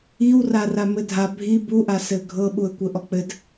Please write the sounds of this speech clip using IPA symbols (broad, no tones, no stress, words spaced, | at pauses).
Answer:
iwra ramɘdʱa bʱi buʔa sɘɡʱɤ ɓuə̯kʷɘʔɔk͡pɘd